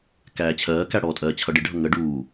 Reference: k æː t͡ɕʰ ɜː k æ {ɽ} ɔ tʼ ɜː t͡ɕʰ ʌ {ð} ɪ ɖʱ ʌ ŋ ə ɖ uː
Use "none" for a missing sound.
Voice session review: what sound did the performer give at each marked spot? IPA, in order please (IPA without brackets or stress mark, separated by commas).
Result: ɽ, ɖ